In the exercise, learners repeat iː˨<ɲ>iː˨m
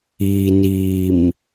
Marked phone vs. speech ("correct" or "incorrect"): incorrect